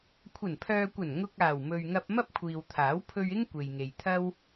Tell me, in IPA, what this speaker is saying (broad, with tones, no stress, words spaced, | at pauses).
kʷʰɐ˨˩npʰœː˨kʷɐ˨˩n ŋʊ˧k̚ aː˨˩wmɵ˨ɥŋɐ˧p̚ mɐ˥p̚kʷʰiː˨wt̪ʰaː˨˥w pʰɵ˧ɥɪ˥ŋ kʷe˨jŋe˨jt̪ʰɐ˥w